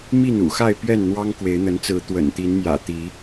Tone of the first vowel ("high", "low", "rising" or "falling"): falling